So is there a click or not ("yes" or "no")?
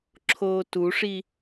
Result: yes